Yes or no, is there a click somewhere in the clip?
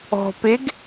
no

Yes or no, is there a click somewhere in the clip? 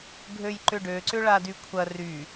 yes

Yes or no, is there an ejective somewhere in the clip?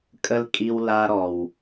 yes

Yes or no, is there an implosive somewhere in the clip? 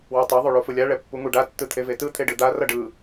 no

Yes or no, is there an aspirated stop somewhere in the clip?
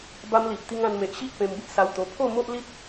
yes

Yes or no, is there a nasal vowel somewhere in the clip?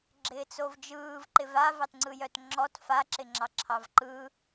no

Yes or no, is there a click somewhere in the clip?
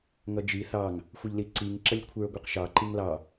yes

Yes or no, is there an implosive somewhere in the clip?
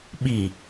yes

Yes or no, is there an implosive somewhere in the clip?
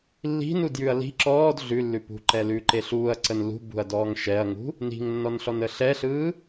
no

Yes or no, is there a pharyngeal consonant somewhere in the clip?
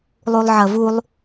yes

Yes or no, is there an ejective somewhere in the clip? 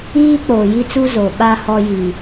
no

